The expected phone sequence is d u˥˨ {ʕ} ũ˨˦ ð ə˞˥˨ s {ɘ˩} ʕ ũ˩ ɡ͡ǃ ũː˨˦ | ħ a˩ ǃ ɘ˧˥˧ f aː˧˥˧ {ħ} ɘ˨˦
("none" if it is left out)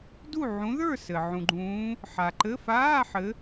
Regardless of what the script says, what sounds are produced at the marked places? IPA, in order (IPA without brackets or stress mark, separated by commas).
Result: ʕ, ɘ˩, ħ